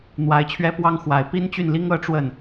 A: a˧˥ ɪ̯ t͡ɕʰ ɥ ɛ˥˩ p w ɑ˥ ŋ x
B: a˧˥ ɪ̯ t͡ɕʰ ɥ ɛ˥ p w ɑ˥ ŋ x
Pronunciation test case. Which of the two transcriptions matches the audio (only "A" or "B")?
B